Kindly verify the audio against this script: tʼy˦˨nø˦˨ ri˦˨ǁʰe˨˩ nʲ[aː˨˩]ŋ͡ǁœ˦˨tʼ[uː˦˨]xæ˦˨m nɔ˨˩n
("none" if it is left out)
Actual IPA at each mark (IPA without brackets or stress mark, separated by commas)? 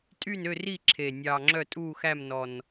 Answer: ɑː˨˩, uː˦˨